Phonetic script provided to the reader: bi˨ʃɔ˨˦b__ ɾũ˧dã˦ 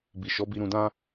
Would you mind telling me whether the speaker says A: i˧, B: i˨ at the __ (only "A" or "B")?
A